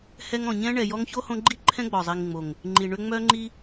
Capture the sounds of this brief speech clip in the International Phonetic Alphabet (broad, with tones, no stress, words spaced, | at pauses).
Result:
hɛ˦ŋ ɔ̃˨ɲɛ̃˥ɳɛ˨ jɔ˦ŋço˥hõ˦ɡ͡ǃi˥ ǃʰɛ̃˦ɡ͡bɔ˩zˤi˨ŋŋ͡mo˩ŋ | ŋ͡ǃi˨ɳʏ˦ŋ͡mœ˥ŋ͡ǃi˥